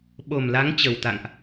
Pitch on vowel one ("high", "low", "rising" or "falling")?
low